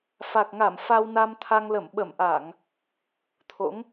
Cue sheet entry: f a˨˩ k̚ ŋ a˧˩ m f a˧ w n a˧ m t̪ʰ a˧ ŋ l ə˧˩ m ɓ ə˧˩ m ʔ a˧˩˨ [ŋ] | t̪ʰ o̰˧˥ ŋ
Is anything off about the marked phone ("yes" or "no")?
no